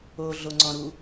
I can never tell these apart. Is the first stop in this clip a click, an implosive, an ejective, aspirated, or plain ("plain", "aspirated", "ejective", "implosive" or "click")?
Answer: click